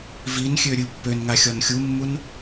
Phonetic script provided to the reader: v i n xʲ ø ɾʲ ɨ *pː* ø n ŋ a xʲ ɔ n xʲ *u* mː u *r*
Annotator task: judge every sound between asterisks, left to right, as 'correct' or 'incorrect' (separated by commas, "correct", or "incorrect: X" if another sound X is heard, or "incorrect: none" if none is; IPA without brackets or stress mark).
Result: correct, correct, incorrect: n